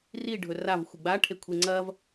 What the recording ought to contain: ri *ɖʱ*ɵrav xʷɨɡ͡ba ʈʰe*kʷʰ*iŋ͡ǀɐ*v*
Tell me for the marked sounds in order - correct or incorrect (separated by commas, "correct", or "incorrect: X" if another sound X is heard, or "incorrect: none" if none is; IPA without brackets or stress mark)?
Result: correct, correct, correct